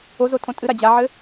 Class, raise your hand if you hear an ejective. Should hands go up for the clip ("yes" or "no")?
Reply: yes